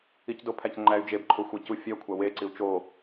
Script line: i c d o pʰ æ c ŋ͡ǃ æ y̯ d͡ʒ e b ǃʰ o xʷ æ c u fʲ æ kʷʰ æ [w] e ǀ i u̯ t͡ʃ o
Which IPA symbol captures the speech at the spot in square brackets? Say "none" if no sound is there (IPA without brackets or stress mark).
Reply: w